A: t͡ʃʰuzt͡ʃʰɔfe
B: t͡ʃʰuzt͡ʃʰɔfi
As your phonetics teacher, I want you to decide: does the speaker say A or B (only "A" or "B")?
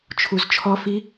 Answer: B